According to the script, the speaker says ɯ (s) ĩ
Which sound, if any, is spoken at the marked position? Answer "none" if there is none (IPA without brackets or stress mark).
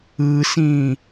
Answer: s